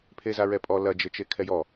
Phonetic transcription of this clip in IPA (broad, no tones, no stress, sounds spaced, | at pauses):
pʰ e z a ɹ ɛ pʼ ɔ l ɐ d͡ʒ ɘ t͡ʃ e kʰ ɛ j ɔ